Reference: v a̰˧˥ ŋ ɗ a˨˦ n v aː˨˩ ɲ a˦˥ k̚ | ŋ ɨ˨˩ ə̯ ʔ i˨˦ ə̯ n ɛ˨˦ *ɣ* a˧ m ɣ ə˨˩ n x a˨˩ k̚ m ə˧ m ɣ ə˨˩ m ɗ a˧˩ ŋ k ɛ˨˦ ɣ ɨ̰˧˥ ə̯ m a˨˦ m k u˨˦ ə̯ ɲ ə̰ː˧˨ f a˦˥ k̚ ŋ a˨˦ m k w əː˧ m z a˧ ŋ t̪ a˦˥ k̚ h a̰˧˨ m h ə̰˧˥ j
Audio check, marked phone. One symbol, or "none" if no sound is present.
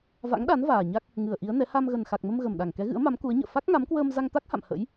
h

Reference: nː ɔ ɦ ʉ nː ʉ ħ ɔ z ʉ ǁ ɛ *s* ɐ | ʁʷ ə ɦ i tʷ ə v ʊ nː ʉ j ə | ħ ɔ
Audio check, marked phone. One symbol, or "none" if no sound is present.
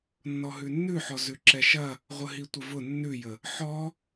ʃ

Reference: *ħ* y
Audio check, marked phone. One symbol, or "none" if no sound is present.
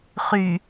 χ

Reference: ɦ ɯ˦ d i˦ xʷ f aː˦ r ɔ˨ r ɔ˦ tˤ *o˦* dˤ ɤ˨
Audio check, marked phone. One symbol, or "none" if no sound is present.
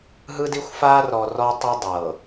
o˦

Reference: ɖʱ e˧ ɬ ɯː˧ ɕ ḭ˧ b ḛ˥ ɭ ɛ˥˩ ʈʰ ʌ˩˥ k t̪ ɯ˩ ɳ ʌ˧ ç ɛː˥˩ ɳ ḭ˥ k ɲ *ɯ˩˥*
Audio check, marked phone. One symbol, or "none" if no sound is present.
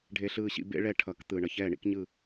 ɯ˥˩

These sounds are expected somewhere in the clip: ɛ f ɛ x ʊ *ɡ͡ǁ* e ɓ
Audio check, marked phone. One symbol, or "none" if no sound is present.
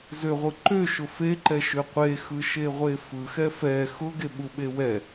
ɡ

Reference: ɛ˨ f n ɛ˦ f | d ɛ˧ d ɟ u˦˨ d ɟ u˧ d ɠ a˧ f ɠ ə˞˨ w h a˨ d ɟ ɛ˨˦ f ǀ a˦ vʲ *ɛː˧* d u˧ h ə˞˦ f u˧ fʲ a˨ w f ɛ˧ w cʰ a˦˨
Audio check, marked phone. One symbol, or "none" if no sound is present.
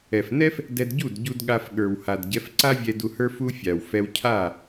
ɛ˧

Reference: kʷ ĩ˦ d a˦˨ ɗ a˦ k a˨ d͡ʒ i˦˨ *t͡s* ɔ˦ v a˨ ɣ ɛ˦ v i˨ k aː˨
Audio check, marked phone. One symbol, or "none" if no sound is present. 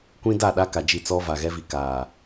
t͡s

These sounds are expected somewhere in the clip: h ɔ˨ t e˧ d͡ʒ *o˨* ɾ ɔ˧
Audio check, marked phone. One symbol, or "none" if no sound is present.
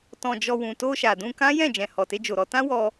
o˨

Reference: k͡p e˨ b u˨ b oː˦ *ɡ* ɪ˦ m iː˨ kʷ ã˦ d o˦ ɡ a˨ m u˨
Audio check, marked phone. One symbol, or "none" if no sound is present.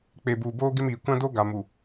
ɡ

